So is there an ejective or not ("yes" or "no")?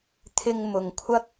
no